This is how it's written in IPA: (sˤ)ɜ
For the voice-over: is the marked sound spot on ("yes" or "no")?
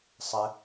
yes